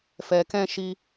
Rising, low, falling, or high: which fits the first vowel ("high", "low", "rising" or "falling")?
low